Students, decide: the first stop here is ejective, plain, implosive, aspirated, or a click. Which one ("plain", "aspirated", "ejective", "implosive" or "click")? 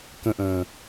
plain